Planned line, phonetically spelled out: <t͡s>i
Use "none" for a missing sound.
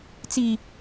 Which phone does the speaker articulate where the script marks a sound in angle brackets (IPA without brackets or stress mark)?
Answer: t͡s